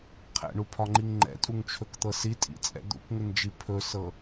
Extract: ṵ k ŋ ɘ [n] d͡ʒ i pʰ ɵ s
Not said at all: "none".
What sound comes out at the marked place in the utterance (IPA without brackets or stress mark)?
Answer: n